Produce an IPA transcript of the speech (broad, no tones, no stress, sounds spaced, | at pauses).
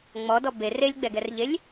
ŋ͡m ɔ d ɔ b e r e lʲ ɡ͡b ɛ ɡ ɛ r ʎ e lʲ